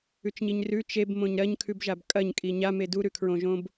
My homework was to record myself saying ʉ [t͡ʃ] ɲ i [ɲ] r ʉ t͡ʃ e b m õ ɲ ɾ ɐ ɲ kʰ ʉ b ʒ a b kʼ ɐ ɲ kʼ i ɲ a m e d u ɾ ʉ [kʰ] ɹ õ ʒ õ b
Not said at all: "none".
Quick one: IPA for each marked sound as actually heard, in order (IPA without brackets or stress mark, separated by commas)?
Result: t͡ʃ, ɲ, kʰ